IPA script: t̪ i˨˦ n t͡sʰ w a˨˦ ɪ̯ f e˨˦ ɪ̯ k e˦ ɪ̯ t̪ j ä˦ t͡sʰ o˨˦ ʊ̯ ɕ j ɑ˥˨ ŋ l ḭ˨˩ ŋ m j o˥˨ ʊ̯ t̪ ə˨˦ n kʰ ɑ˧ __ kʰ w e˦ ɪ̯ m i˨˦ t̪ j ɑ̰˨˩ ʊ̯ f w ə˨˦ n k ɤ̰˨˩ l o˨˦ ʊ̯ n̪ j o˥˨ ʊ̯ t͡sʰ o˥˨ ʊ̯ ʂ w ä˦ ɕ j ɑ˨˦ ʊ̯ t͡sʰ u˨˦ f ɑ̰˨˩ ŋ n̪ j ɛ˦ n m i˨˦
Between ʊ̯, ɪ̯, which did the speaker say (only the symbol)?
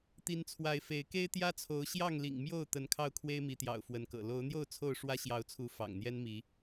ʊ̯